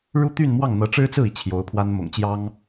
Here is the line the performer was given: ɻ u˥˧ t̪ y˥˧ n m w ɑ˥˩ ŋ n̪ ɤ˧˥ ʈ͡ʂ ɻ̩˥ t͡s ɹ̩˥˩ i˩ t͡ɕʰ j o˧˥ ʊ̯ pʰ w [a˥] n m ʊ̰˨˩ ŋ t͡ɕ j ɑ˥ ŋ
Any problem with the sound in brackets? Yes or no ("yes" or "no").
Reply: no